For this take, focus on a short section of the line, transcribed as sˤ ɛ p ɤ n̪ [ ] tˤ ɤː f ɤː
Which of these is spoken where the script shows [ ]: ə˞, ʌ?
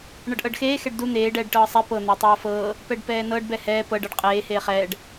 ə˞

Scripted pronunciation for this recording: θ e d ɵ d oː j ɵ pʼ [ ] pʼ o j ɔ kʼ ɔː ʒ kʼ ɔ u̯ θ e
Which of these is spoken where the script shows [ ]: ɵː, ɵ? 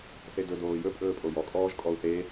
ɵː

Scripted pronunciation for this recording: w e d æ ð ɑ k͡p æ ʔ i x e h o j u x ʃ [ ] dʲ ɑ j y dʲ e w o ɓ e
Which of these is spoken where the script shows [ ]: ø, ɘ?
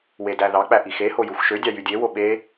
ø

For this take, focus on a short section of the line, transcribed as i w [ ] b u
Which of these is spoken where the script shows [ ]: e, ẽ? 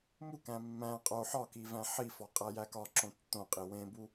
ẽ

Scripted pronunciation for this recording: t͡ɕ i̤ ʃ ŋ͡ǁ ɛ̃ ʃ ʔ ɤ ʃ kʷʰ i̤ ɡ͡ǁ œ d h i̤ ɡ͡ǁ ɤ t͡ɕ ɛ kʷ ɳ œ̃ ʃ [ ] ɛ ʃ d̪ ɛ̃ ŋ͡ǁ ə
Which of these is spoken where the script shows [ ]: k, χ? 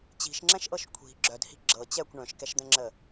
k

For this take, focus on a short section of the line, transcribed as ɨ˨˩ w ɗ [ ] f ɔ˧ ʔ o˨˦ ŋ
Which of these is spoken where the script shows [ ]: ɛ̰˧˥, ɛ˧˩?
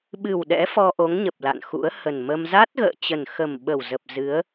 ɛ̰˧˥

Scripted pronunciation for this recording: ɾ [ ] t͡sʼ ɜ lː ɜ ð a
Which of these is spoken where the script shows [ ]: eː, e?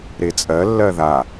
e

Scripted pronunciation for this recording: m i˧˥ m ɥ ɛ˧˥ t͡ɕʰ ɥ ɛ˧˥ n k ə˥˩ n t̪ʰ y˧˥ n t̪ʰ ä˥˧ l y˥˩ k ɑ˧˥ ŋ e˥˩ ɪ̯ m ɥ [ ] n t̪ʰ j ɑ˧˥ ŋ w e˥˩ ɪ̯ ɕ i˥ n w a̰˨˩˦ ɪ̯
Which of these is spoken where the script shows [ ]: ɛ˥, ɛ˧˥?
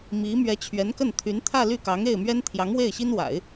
ɛ˥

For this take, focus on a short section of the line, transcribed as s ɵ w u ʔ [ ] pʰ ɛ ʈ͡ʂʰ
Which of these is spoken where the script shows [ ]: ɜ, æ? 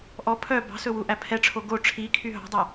æ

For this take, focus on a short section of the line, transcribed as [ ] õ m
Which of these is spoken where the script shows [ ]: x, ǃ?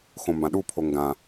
x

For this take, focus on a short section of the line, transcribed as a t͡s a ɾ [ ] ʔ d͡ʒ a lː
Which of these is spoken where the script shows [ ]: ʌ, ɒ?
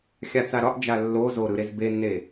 ɒ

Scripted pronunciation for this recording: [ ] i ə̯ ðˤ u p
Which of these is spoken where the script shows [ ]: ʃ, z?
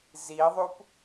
z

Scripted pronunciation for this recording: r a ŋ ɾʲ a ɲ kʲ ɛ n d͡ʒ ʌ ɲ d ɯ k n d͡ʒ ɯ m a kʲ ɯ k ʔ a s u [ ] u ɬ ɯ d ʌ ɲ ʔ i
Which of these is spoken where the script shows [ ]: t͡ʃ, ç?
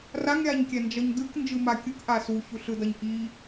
ç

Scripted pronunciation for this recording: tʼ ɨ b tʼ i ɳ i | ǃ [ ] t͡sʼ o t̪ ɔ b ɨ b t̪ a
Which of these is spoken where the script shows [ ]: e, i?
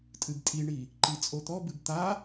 i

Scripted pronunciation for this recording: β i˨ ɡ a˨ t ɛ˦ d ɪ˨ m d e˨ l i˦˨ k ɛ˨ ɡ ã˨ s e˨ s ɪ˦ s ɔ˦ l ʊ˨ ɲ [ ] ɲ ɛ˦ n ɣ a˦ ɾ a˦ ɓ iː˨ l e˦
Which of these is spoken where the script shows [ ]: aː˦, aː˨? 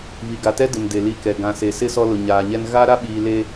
aː˨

